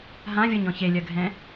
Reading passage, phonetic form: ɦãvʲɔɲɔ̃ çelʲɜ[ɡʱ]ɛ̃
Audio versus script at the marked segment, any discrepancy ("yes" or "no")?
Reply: no